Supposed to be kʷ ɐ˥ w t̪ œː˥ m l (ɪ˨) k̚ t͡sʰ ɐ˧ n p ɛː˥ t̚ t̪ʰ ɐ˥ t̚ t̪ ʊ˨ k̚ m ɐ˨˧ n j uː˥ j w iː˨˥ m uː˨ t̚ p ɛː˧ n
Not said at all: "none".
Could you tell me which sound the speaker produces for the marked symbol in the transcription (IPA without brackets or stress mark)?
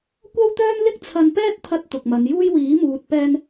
ɪ˥